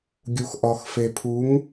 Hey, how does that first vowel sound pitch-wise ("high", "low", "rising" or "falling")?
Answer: low